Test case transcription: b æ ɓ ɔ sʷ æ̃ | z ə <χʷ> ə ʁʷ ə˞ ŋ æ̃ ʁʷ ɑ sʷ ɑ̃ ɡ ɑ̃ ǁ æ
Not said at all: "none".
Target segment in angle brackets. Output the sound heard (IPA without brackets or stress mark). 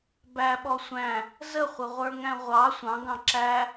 χʷ